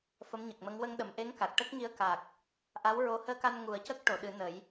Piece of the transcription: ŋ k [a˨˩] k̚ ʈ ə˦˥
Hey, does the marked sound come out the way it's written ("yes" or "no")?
yes